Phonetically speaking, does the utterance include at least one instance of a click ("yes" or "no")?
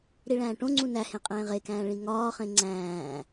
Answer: yes